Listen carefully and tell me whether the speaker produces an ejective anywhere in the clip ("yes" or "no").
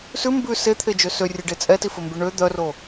yes